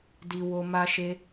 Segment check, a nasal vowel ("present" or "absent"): absent